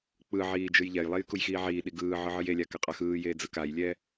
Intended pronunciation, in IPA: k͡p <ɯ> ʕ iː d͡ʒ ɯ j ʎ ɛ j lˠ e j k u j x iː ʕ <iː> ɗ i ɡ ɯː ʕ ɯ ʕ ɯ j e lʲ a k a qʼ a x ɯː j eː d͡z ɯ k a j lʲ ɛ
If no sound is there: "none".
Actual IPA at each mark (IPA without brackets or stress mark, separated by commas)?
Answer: ɯ, iː